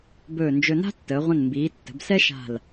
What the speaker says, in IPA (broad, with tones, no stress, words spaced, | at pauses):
bɵː˧˩nd͡ʒɵ˧ na̤˥tːəː˩˧ʁʷə̃˧˩nmbiː˩˧ tːə̤˩˧bsɛ˥ʃa̤˧˩l